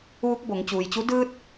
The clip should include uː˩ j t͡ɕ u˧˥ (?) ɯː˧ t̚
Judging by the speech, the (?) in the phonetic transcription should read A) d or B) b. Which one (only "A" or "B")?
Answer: A